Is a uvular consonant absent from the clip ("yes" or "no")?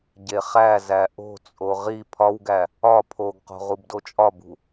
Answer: no